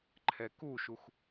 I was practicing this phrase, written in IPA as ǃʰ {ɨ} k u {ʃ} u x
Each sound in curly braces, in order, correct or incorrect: incorrect: ɛ, correct

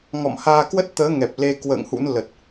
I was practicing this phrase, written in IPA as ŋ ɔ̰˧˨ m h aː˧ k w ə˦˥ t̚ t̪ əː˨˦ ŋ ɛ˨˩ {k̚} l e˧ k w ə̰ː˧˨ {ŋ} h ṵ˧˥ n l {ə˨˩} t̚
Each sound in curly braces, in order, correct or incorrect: incorrect: p̚, correct, correct

